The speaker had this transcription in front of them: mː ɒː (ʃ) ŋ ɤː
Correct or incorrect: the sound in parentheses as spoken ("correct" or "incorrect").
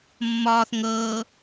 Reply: incorrect